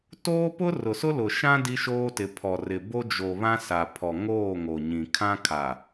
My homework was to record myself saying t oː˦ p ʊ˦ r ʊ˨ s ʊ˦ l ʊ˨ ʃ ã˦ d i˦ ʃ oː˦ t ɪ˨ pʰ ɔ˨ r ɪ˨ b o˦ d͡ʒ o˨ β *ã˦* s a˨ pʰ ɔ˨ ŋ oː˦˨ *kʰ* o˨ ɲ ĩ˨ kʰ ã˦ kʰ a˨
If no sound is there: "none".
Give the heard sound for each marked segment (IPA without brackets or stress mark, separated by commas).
ã˦, ŋ